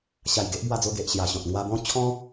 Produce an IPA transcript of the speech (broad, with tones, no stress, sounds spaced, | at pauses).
ɕ a˨˩ j ɡ e˦ ʔ b w a˧ d͡z o˧ ɡ e˨ ʔ ɕ j a˨˩ ɕ ɔ̃˨ t̚ ŋ w a˧ b ɔ̃˥˧ t͡ɕʰ ɔ̃˦